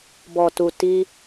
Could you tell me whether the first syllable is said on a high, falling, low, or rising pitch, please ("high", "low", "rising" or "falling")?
low